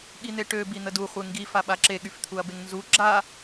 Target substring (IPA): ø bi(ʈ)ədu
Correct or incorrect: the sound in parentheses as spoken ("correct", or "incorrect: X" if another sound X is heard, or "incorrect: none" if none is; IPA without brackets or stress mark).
incorrect: n̪